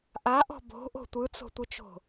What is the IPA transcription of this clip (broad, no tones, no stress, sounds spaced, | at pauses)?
ʔ a ʔ ɔ̤ b o̤ ʔ o̤ tʷ ɯ t͡s o̤ tʷ ɨ t͡ʃ o̤